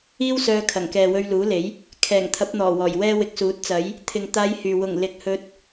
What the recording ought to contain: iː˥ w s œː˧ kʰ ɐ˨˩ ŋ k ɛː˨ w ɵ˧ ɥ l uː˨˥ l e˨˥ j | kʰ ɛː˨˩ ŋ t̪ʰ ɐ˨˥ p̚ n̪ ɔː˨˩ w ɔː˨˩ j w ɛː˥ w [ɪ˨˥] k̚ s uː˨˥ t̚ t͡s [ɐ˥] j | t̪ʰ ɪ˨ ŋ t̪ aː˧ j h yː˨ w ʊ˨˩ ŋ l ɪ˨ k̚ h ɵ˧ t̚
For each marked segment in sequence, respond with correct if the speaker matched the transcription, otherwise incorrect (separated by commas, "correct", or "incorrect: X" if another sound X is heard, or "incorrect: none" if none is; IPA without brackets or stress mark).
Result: incorrect: ɪ˧, incorrect: ɐ˨˥